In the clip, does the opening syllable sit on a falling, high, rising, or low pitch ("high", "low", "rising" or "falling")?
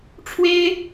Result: high